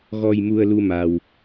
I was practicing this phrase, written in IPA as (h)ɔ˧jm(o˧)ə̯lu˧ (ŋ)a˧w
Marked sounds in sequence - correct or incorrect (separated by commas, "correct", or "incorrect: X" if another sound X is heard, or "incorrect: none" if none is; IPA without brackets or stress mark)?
incorrect: ɣ, incorrect: u˧, incorrect: m